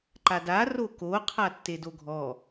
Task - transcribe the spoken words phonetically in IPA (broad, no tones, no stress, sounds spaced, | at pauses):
ǃ a d a r o k o qʰ a tː e d o ɡʱ ɔ